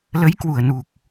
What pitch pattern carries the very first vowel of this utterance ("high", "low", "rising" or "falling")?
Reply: rising